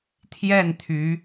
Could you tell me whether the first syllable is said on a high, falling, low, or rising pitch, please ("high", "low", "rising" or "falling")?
falling